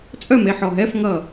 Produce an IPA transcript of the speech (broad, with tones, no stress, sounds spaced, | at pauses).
t͡sʼ œ˥˨ m e˩˧˩ ħ ɔ˧˩ ɦ ɛ˧˥˧ f ŋ ʌ˧˩